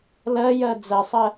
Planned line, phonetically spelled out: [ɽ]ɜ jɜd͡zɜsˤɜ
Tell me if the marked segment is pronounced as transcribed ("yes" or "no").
no